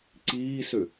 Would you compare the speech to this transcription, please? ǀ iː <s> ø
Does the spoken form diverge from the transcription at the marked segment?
no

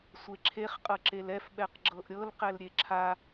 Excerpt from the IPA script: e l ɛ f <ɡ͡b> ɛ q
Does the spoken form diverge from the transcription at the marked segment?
yes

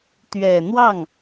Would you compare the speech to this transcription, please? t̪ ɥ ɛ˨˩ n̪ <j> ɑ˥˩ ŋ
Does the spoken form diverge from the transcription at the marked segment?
yes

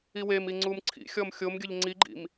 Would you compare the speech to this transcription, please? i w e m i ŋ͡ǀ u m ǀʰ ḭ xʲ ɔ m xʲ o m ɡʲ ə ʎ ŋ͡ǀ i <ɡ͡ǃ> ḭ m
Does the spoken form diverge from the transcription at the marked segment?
no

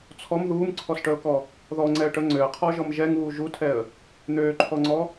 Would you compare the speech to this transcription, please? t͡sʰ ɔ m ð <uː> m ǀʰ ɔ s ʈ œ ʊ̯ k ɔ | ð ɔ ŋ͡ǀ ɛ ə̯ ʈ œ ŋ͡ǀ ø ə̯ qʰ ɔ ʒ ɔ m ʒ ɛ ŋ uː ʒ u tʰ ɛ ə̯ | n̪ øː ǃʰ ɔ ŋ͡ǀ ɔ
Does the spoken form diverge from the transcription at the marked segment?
no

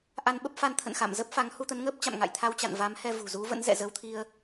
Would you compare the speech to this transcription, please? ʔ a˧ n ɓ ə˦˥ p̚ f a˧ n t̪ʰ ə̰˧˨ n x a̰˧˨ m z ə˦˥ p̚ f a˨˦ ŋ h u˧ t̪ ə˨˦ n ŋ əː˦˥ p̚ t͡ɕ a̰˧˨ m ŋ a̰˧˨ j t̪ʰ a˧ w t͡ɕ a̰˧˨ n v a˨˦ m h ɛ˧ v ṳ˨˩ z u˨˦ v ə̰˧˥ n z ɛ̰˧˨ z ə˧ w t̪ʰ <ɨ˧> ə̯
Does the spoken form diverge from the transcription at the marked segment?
yes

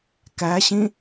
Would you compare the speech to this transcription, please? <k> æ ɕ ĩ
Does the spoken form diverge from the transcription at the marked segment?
no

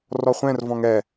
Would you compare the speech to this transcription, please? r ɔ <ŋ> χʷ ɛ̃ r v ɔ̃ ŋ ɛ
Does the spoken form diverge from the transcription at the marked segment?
yes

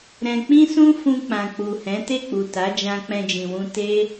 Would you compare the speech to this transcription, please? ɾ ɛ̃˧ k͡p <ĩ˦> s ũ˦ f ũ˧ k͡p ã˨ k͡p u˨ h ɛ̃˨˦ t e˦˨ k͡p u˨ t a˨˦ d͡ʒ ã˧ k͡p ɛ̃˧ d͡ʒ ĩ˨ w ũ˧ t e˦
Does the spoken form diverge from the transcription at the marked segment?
no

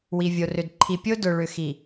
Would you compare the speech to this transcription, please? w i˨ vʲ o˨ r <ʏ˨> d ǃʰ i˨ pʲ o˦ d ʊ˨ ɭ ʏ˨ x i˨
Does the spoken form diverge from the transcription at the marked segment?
no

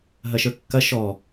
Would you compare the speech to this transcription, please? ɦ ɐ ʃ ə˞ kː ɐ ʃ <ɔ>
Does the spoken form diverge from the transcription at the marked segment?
no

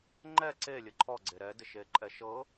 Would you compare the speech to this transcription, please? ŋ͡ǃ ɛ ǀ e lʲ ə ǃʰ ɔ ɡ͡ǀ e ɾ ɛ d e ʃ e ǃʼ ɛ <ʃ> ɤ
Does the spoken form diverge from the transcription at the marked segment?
no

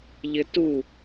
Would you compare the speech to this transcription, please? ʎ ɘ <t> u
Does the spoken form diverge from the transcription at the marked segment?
no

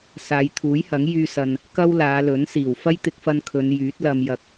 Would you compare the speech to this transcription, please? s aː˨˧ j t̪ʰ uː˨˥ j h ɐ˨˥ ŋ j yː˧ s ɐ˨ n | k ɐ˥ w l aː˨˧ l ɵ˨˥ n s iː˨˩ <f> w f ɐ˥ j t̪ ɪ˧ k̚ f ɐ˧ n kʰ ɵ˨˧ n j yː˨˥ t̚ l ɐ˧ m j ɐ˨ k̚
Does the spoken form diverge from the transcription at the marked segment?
yes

